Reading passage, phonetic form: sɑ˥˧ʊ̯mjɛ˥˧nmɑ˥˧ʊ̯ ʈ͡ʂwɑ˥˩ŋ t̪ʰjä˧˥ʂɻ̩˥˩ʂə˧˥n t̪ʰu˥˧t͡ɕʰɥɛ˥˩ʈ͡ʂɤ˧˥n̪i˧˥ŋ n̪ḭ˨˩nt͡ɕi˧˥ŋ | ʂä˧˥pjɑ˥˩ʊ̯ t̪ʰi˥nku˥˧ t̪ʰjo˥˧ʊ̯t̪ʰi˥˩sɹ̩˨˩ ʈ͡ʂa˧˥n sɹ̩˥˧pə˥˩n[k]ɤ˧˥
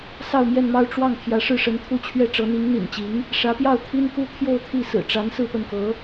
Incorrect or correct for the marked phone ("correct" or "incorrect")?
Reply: correct